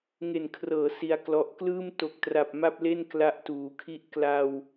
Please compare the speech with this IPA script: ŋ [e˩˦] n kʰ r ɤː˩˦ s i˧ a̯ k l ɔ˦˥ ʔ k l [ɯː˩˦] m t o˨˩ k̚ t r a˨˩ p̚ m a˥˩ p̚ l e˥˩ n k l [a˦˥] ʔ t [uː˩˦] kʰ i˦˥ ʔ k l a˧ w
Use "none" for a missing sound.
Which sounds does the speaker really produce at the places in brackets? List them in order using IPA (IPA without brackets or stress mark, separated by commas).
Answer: e˨˩, ɯː˥˩, a˦˥, uː˩˦